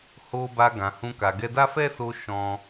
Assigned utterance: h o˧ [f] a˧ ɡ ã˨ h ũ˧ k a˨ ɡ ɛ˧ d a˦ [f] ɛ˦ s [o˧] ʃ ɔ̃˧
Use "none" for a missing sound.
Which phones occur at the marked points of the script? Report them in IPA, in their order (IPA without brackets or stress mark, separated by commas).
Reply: b, f, o˧